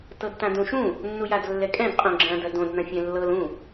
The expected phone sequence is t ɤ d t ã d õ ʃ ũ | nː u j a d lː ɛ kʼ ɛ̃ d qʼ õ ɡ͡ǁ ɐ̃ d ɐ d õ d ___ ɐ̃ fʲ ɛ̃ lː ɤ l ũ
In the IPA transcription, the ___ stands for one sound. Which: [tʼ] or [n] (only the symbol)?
n